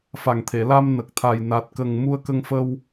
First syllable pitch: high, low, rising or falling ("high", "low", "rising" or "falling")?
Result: low